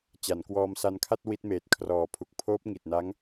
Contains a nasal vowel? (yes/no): no